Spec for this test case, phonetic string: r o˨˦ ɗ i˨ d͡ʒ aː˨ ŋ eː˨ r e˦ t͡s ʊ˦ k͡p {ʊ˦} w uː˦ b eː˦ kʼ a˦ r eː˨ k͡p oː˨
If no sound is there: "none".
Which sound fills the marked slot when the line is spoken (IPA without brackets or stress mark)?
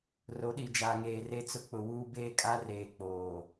ʊ˨